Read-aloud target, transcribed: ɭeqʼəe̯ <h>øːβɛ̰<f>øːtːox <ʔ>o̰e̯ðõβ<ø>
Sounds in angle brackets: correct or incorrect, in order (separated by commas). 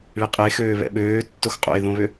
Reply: incorrect, incorrect, incorrect, correct